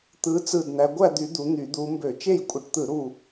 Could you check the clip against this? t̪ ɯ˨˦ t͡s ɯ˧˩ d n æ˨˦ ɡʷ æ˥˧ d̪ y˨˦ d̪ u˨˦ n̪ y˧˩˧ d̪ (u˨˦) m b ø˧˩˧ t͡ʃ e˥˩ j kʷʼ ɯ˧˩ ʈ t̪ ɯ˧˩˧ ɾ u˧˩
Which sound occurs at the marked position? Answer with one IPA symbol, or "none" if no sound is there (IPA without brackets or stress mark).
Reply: u˨˦